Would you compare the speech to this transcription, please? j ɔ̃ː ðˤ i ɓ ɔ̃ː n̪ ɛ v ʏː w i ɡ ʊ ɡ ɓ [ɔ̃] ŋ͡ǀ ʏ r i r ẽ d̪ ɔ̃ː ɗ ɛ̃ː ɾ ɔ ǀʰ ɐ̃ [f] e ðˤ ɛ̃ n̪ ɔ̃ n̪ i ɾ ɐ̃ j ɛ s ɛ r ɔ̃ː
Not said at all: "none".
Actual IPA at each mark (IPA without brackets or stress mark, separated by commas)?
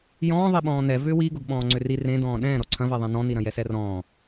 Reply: ɔ̃ː, v